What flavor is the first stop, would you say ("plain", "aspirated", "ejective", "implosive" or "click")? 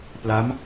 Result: plain